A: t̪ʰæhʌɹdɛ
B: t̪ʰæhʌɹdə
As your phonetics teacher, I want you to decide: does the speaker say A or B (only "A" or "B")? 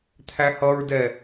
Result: A